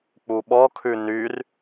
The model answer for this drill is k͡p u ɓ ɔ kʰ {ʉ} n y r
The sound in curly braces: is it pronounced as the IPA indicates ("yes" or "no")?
yes